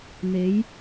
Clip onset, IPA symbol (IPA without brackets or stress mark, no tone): n̪